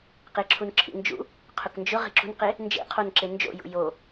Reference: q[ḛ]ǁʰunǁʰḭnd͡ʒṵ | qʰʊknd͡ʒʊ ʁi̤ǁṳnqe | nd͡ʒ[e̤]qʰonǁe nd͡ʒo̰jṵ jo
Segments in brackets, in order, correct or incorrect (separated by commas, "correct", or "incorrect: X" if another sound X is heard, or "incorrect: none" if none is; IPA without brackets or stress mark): incorrect: e, incorrect: ḛ